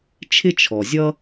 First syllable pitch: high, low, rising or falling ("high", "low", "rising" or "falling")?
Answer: high